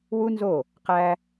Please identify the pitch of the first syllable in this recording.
high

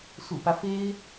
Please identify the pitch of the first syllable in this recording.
low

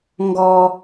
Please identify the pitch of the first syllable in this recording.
low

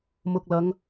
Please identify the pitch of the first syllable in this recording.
low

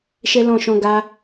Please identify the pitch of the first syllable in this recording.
high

